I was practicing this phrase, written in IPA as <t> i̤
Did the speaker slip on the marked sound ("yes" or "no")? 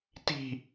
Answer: no